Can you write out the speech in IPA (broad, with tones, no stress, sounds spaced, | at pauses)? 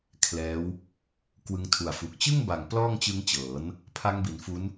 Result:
kʰ l ɛː˦˥ w | k w ɯ˧ ŋ tʰ u˨˩ a̯ f u˨˩ k̚ t͡ɕ ɯ˥˩ ŋ b a˨˩ ŋ p l ɔː˥˩ ŋ t͡ɕ ɯ˦˥ ŋ t͡ɕ ɤː˩˦ n | pʰ a˦˥ ŋ b i˩˦ n f u˦˥ n